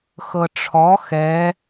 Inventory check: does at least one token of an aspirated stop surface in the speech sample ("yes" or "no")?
yes